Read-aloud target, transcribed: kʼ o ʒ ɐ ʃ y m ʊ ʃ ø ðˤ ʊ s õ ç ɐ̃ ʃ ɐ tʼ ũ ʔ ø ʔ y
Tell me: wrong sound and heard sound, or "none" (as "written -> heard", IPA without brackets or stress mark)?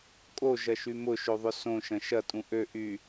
ç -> ʃ